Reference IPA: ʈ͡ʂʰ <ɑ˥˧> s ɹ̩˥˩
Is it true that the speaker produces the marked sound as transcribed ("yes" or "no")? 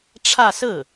no